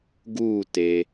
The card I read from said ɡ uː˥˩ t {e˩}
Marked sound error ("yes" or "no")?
no